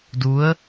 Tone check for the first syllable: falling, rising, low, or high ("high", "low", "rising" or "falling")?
rising